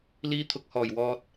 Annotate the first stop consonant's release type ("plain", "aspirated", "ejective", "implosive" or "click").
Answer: aspirated